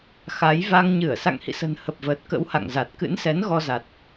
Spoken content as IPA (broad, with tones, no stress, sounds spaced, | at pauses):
x a˨˦ j v a˧ ŋ ɲ ɨ˧˩ ə̯ s a̰˧˨ ŋ h ḭ˧˨ s ə̤˨˩ n h ə˨˩ p̚ v əː˨˩ t̚ k ə̰˧˥ w h a̰˧˨ ŋ z a˨˩ t̚ k ɨ̰˧˥ n s ɛ˨˦ n ɣ ɔ˧ z a˨˩ t̚